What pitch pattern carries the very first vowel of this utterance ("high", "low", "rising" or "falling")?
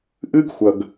high